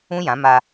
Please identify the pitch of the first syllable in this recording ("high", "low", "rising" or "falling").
high